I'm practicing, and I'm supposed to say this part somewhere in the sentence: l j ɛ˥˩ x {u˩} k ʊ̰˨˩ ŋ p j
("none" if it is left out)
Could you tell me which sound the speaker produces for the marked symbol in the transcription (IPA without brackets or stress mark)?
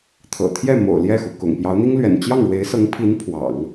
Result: u˩